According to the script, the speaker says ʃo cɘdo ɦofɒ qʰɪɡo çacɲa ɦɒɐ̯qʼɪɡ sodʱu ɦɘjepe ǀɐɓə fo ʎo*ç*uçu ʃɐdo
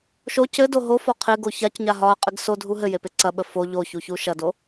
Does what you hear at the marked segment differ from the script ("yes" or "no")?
no